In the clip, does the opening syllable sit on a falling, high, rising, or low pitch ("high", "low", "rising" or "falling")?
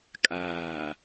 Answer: low